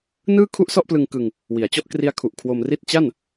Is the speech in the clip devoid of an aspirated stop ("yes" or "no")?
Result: no